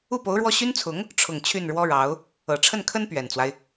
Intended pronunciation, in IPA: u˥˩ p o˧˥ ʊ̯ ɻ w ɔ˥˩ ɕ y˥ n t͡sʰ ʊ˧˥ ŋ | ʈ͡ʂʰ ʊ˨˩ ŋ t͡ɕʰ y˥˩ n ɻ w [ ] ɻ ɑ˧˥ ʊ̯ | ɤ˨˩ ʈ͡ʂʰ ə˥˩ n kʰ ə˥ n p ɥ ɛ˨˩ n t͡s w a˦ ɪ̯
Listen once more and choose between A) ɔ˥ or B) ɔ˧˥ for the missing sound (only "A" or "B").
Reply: A